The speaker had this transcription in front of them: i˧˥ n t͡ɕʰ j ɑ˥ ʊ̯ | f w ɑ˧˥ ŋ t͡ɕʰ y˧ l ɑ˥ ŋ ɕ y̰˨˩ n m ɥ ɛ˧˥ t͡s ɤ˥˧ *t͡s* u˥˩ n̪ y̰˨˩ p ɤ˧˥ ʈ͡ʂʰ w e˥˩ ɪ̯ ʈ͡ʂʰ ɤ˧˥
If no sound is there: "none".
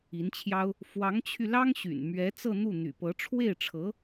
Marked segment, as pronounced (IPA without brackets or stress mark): n̪